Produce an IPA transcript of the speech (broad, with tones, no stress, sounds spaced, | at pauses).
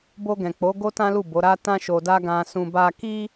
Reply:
b o˧ ɡ ɛ̃˨ k͡p o˨˦ ɡ o˦ t ã˦ l u˦˨ b o˨˦ ɾ a˦ t ã˦ ʃ o˧ d a˦ ɡ ã˧ s ũ˧ b a˦ k i˦